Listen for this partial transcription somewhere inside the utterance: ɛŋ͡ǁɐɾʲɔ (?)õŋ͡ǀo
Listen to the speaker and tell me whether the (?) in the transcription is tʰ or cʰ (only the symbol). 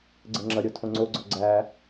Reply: tʰ